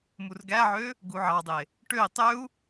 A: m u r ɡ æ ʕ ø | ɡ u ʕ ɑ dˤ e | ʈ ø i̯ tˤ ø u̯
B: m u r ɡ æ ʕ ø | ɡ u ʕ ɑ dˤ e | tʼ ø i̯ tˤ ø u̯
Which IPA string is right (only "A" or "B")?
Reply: A